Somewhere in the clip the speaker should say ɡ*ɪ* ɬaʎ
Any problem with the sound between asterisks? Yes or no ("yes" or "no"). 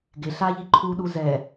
no